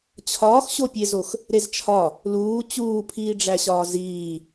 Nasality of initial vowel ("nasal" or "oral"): oral